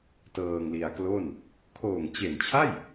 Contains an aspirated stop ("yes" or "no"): yes